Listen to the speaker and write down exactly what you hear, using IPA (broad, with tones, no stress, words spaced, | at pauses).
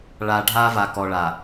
ɭa˨ɖʱa˦va˨ kɔ˨ɭa˨